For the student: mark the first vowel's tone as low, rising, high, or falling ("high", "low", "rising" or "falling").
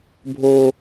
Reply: high